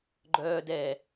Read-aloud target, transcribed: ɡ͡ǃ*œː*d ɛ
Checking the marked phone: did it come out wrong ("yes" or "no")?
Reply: no